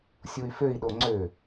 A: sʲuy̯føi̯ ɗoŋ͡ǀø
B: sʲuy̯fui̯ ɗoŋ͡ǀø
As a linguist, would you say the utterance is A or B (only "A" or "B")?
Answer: A